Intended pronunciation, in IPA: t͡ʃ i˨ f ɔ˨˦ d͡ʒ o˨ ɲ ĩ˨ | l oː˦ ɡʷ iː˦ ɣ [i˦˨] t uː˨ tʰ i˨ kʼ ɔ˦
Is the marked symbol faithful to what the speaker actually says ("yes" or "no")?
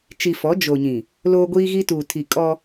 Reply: no